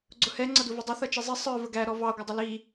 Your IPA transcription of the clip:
ɡ͡ǀʊhɛ ŋ͡ǀʌduvɪdˤʌ θʌt͡ʃizˤi sˤə˞ vəɡæ ɾɔvɑ ɡʷʌdˤʊli

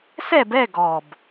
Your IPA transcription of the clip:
sɛ˥˧bɛ˥˧ɡɔ˨˩b

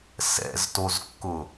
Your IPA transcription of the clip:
sɛ̰ztozkːʊ

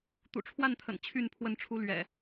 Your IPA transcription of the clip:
t̪ṵ˨˩ʈ͡ʂʰwa˥˨nt̪ʰə̰˨˩n t͡ɕʰy˥˨npʰwə˥˨nʈ͡ʂʰu˦ lɥɛ̰˨˩

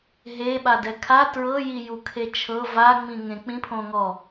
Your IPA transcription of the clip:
ɦeɓadɛ kʰa tɹɤjijukʰe t͡ʃʰɤ vaŋ͡mĩŋẽ k͡pĩpʰõŋɔ

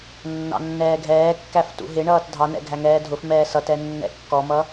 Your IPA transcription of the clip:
nːɑ̰nːɛːɡʱɛːkːæf tṵɦɪɳʌːt dʱɑnɛ̰ ɡʱæŋɛːdʱʊfmɛː sʌtɛ nːɛ̰kːɔmʌ

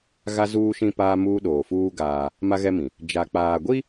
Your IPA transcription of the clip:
ɣa˦zuː˦ʃĩ˦ paː˦muː˦ ɗoː˨fuː˦ ɡaː˦ | ma˦ɣɛ˦mĩ˨ | d͡ʒa˨k͡paː˨ɡʷi˦

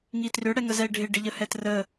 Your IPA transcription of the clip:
ŋitrʏ ɽɛŋəzɛɪ̯ɖʱɪ ɖɪʎəhɛtrə

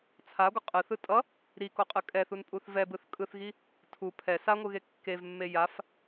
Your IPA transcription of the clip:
t͡sʰaɡʷʌ qʼɯθɯ tʼʌ | ɾikoqʼɯ kʼɛθunpʼuθ vɛbɯθ kʼɯθɣi | tʰu pʰɛ saŋʷɯɣe kːevmːe jaf

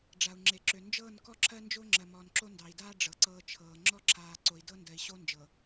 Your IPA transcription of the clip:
ɖ͡ʐa˨u̯ŋ͡ǁe˨ǁø˨ nd͡ʒɤː˦˨n kɔ˦ǁʰɜ˦nd͡ʒo˦ ŋ͡ǁɜ˨ mɔː˨nǁo˦ndɑ˨i̯daː˦ ɖ͡ʐɤ˨ǀɤː˦t͡ʃʰɤː˨ ŋ͡ǁɔ˦ǁʰaː˨ ǀo˨i̯dɤ˦ndɜ˨i̯ɕo˦ nd͡ʒɤ˨

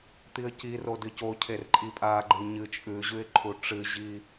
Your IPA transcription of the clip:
t̪iə̯ciro dɨcocʰer ǃʼipʼaɡ͡ǃɨ ɲɨ t͡ʃʼʉ ʑʉɪ̯ǃʰuʈ͡ʂɨʑi

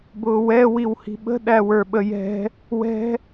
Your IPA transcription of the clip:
bʊːwɛ wiwhi̤ɓə̤ ɗæwə˞ɓəjɛ̤ | wɛ̤

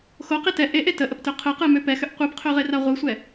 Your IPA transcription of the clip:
xoqi tɛ ʔeʔe təʔəptø qʰɯqɯmø pɛxʏʔ qʷɯpqʰøʁera ʁʷɯsʷɛ

